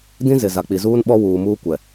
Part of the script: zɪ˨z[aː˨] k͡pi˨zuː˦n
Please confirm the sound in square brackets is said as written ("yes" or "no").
no